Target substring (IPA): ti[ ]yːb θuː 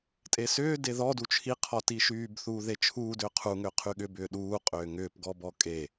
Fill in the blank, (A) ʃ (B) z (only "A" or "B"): A